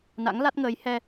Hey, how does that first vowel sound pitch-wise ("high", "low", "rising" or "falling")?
rising